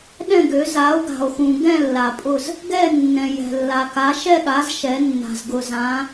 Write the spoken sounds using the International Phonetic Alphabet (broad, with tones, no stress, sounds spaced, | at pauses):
ɗ ɛ̃˦˨ ɡ ø˩˧ z a˩˧ o̯ ɡ a̤˩ o̯ x ũ˩ ɡ ɛ̃˦˨ lː a˩ pʼ ʊ˦˨ z | ɡ ɛ˦˨ nː ɛ̃˩ j ɛ̤˩ lː a˩ k a˩˧ ʃ ɛ˦˨ ɠ a˩˧ z ʃ ɛ˩˧ nː a̤˩ z ɡ ʊ˩ z ã˩˧